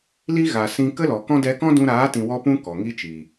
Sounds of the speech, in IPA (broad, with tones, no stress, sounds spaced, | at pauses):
l i˦ ɣ a˨ s ĩ˧ k ə˦ l ɔ˨ k ɔ̃˦ d ɛ˧ k ɔ̃˦ d ũ˧ ɾ aː˨˦ t ĩ˨ w ɔ˧ p ũ˧ k ɔ˨ ŋ i˦ t͡ʃ i˨